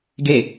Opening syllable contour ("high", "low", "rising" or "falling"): falling